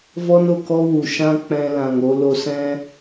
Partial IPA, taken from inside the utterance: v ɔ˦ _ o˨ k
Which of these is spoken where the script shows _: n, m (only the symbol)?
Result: n